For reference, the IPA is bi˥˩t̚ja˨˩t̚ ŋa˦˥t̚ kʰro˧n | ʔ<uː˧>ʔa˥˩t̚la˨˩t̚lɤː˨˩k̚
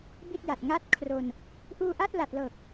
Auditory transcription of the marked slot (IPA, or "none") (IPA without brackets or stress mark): uː˧